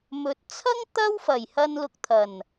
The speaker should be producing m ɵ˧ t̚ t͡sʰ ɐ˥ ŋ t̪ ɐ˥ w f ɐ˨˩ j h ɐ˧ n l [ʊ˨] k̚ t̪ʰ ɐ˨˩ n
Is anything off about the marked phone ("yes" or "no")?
no